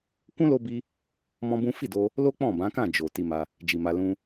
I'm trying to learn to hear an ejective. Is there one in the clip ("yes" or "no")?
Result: no